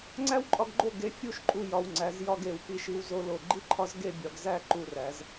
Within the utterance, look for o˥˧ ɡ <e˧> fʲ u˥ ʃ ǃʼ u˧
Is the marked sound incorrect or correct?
correct